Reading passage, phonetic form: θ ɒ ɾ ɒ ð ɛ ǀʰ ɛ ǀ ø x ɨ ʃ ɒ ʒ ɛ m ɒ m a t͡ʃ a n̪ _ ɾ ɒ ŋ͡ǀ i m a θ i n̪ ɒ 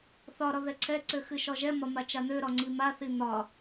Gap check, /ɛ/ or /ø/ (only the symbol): ø